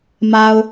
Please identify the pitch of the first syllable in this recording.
low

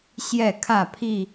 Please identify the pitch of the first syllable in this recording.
falling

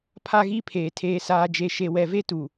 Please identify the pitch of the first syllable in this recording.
high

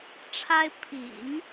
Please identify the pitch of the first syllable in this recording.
high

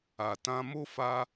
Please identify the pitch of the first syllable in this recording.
low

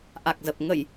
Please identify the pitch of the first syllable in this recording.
low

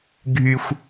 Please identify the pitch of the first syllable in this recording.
high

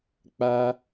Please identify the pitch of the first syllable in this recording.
high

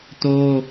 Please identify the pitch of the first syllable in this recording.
high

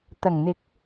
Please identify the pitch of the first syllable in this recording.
low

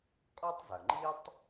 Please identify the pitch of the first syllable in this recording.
high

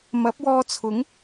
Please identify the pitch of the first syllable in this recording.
rising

